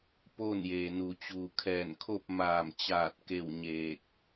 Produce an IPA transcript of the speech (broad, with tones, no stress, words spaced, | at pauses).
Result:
poː˥˨njeː˩nu˩ t͡ɕuː˩kʰɛː˧˩nkʰo˥˨p̚ maː˧˩mt͡ɕaː˧˩t̚ ke˥˨wɲeː˧˩k̚